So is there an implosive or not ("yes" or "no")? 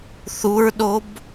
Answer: yes